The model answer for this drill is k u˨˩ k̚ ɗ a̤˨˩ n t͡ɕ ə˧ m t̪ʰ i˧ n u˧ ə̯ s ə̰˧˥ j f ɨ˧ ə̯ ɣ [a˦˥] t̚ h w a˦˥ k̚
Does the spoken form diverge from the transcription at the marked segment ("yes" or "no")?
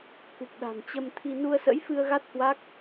no